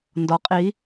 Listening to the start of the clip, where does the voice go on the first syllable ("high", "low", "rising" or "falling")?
rising